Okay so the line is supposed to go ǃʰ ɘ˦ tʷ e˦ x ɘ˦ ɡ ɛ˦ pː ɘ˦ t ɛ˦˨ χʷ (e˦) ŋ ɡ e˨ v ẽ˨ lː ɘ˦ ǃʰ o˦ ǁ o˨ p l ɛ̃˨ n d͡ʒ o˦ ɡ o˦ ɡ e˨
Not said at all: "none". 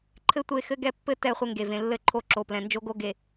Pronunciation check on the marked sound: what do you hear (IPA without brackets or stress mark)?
ɘ˦